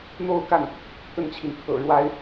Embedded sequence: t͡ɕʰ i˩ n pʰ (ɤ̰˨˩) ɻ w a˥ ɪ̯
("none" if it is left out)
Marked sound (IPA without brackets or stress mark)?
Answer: ɤ̰˨˩